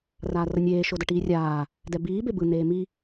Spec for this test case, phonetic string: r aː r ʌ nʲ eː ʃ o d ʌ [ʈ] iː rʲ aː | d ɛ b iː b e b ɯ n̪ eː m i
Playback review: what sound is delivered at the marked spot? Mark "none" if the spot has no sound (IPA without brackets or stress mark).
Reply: ʈ